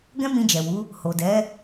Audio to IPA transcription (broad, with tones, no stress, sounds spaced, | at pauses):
ɡ ɛ̃˦ m ĩ˧ d͡ʒ ɛ˨ w u˨˦ | h o˨ d ɛ˨˦